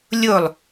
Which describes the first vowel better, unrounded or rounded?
rounded